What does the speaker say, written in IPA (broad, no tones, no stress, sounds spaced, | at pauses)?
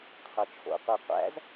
qʰ ɤ t͡ʃʰ o̰ qʷ ɤ qʷ æ̰ z